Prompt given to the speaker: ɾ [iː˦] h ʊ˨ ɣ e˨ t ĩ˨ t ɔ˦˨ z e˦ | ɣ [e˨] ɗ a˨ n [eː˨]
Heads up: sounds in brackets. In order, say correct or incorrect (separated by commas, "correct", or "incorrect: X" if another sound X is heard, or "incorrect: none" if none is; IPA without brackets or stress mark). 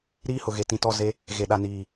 correct, correct, incorrect: iː˨